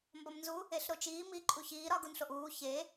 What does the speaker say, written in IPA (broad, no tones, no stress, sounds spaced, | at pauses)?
m b ɒ m n z u | e ɬ ɾ o t͡ʃ iː m i ǃʼ u ç iː ɾ ɒ ɡ u n ɬ o ʔ uː ç e